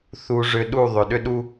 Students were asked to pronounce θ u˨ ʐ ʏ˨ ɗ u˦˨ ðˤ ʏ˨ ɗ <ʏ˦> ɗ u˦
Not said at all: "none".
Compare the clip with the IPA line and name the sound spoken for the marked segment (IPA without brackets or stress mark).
ʏ˦